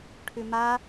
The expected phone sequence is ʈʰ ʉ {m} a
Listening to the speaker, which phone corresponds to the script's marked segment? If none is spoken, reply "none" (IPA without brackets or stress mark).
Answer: m